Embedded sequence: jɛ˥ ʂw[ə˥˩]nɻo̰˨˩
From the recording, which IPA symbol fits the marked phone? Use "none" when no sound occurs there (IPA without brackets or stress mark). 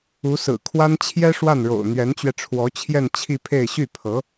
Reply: a˥˩